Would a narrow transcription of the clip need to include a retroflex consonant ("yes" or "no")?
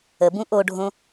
yes